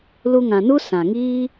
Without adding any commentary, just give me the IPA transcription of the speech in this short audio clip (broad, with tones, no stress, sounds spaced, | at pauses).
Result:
l u˧ ŋ ã˨ n u˦ s ã˨ ŋ iː˦